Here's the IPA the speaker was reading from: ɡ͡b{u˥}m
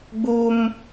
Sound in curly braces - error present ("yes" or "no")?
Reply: no